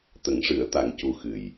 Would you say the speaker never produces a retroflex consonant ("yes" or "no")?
no